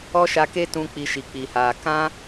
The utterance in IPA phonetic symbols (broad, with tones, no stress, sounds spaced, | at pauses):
ɔ˦ ʃ a˧ k e˦ t ũ˧ k͡p i˧ ʃ i˨ k͡p i˨ h aː˨ k ã˦